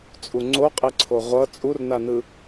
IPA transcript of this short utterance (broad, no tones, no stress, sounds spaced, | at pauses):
t͡sʼ u ŋ͡ǀ o qʼ e ǀʰ o ʁʷ ʌ t͡sʼ u r n a n ɯ